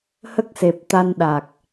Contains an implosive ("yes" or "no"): yes